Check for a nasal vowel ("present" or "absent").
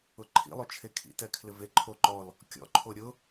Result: absent